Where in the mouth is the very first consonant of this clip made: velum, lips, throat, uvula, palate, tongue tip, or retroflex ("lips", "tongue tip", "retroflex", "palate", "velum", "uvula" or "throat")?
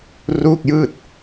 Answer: tongue tip